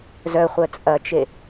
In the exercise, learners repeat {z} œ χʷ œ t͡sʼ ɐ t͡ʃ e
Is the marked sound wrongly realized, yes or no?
no